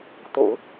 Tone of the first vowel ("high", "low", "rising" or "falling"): low